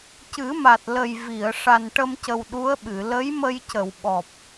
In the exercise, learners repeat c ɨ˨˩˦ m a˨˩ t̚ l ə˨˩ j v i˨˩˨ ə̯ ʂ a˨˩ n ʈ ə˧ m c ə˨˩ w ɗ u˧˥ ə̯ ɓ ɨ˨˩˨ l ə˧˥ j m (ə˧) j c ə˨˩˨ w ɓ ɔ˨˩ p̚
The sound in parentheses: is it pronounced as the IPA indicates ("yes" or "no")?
yes